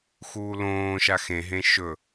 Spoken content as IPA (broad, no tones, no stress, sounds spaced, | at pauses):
x uː l õː ʃ a x ẽ ɦ ẽ ʃ ɵ